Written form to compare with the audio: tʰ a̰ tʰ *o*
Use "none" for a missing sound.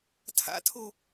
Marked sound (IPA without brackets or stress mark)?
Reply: o